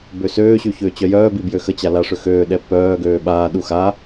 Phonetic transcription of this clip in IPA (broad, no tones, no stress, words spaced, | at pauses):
bøsøːɕy çøːt͡ɕœjœːbi bjøxət͡ɕa laʂøxøːɗɛ pœːɡøː ɓaːɗu xa